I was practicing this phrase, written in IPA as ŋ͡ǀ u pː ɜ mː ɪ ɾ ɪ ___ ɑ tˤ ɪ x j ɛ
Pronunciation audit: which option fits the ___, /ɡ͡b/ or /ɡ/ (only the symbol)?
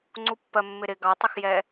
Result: ɡ